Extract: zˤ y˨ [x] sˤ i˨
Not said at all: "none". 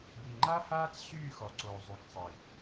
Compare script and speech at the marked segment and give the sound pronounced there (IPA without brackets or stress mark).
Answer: k